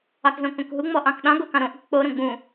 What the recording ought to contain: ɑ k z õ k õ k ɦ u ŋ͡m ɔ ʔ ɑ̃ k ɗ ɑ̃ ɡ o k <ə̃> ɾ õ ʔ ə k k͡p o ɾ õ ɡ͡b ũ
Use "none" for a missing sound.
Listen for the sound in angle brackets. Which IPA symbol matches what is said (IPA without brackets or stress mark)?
ɑ̃